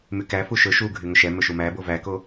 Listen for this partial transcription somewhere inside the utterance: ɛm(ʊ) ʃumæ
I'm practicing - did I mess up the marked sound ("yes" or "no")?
yes